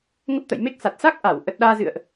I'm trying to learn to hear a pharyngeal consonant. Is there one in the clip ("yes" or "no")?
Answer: no